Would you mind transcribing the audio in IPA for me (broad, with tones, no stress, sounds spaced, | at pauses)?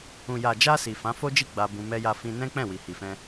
ũ˨ j a˨ d͡ʒ a˧ s i˨ f ã˨˦ f o˦ d͡ʒ i˦˨ ɡ͡b a˧ b ũ˧ m ɛ˧ j a˧ f ĩ˧ n ɛ̃˦ k͡p ɛ̃˦˨ w i˨ h i˨ f ɛ̃˧